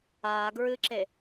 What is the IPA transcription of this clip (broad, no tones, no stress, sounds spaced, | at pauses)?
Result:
aː ɡ ɹ ɨ ǁ e